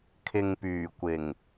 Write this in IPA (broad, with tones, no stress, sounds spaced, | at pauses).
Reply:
kʰ ɪ˨ ŋ p yː˨˩ kʷ ɪ˨˩ ŋ